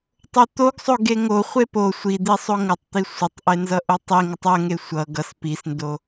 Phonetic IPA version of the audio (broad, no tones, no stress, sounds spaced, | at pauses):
tˤ o t̪ o ɡ sˤ o ɡ e ŋ o χʷ e p o sʷ i d̪ i sˤ o ŋ ə tˤ t̪ i sʷ ʌ tˤ ʔ e n z ʌ ʔ o tˤ e ŋ ə tˤ ʌ ŋ e sʷ ʌ ɡ ʌ s p i s n d o